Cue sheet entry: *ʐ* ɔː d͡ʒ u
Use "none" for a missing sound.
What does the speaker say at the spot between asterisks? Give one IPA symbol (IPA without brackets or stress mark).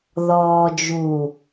ð